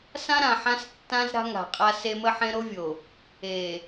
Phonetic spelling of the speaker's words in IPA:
s ã˦ ɾ ã˨ ħ ã˦ s tː ã˦ z ɾ a̤˦ ŋ a̤˨ qʼ a˦ s e˦ m ə˦ ħ ẽ˦ ɾ o˦ vʲ o˨ | e˨

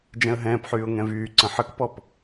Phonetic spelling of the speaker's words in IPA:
d͡ʒ ɛ̃ ə̯ ɦ ɛ̃ː p ħ yː ʊ̯ ŋ ɛ̃ v yː ǀ ə̃ ħ ə k p ɔ p

